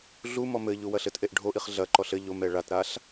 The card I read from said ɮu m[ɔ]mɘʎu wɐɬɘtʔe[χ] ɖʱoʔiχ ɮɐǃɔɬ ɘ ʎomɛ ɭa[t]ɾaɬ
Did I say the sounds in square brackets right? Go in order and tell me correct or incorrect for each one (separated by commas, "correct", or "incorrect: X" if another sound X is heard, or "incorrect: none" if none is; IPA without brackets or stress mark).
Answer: correct, incorrect: ʔ, correct